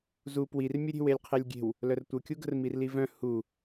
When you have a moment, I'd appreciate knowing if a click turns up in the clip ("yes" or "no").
no